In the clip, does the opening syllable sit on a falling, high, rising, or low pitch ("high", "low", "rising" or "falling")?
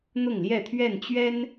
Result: falling